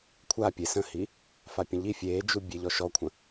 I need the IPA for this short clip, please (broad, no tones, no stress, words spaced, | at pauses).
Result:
kʷʰa pʲe sə̃hi | fapʲə̃ʎi fʲeːd͡ʒu bʲeʎɔʃɔkʷʰə̃